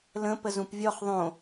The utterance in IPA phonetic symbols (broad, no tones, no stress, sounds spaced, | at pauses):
l ə̃ p ə z ũ p vʲ ɔ χ ðˤ õ